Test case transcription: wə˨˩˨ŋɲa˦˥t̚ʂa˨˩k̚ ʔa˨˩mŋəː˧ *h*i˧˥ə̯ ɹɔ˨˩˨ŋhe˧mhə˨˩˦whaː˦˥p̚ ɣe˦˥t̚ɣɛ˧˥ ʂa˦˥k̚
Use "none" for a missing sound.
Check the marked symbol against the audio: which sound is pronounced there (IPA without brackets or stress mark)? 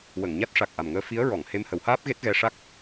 f